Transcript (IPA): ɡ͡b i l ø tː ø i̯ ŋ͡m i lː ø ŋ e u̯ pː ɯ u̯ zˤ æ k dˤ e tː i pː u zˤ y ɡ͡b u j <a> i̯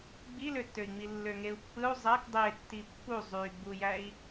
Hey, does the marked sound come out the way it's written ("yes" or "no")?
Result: no